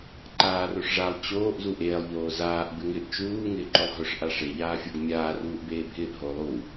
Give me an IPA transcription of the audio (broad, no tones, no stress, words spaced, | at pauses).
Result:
ǃaːroʂʐalˠ t͡ɕoːʔ zuʔeːlˠ ʎoːzaːʔ bɪŋɪʔ t͡ʃuː ŋɪːǃʊlˠɦʊʂ ʔaʂe ʎaːfʲoɡmʲaː ruːʔbeːbʱɪːʔ ɦolˠu